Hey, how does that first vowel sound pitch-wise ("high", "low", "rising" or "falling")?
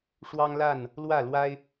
high